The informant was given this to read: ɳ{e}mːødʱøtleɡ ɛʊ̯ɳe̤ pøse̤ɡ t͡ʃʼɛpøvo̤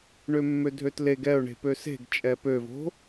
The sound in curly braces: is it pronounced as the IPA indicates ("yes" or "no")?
no